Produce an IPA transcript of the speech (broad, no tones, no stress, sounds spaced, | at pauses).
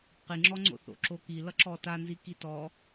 q i ŋ͡ǁ ɔ ŋ͡ǀ o̰ θ o̰ ǁ o k i l ʌ ǁ ɔ t a n z i k i t ɔ